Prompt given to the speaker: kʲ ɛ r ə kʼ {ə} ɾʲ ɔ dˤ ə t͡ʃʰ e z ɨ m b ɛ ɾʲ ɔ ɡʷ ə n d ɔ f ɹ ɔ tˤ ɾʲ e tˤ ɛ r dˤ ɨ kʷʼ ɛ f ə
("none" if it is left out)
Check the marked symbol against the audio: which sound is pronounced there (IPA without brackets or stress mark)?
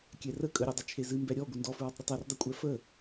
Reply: ə